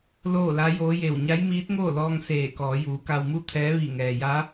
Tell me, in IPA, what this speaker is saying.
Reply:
loː˥˨la˧˥joː˧˥je˧˩w ɲa˧˥jmiː˧˥t̚ŋoː˥˨lɔː˧ŋ seː˧˩kɔː˩˧ juː˩˧ka˧wmu˥˨t̪ʰɛː˧˥ ʋi˧˩ŋɛː˩ja˧˥

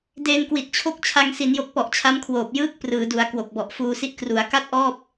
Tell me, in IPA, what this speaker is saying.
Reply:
deː˧nkwi˨˩t̚t͡ɕʰo˦˥k̚ t͡ɕʰa˧ŋ si˩˦njo˨˩k̚pɔ˨˩ʔ t͡ɕʰa˦˥mkʰwoː˨˩p̚ jɯː˦˥k̚ prɯː˩˦du˩˦a̯ kwo˨˩k̚bɔ˨˩ʔfuː˧si˥˩ʔ kru˩˦a̯ka˥˩t̚ʔɔː˥˩p̚

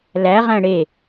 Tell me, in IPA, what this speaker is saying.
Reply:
læʁæ̃ ɽe

